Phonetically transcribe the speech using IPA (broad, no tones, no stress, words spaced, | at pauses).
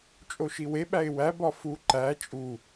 t͡ʃʼoʃiwe ɓæɪ̯wæ bɒfu ǃæ t͡ʃʼu